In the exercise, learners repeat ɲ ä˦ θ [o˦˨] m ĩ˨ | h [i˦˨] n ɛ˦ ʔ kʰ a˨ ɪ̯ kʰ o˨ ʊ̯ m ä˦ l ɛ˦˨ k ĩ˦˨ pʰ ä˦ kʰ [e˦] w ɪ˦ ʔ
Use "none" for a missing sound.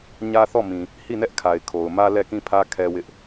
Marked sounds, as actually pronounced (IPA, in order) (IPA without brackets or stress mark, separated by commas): ɔ˦˨, i˦˨, ɛ˦